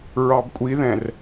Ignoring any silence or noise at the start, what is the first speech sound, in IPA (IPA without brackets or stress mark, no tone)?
ɹ